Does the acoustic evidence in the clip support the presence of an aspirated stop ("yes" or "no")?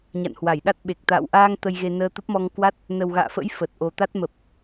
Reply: no